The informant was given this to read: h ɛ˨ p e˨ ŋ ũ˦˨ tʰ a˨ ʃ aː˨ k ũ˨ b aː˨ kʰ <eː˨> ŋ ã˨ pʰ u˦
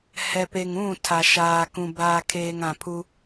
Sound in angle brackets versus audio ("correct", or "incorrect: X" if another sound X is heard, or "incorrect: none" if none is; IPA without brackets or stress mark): correct